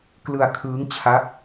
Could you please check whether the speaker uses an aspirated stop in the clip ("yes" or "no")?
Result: yes